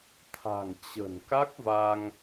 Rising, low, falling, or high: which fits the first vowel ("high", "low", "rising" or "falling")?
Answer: low